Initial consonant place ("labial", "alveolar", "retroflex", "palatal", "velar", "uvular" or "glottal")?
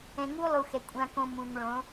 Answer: velar